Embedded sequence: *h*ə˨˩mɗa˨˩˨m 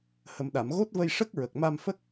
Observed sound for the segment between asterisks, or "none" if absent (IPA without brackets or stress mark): h